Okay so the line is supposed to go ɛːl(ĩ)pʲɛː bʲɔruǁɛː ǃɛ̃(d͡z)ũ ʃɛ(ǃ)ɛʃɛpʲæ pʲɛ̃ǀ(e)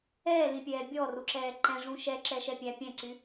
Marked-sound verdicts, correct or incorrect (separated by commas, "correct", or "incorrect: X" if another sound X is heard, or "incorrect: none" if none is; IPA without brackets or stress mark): correct, incorrect: ʐ, incorrect: ǁ, incorrect: y